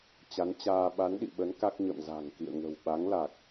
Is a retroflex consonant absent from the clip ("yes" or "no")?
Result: yes